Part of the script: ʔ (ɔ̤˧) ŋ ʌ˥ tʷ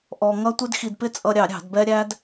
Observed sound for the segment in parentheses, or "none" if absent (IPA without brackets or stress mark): ɔ˧